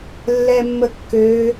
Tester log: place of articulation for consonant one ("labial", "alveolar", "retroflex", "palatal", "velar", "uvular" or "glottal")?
alveolar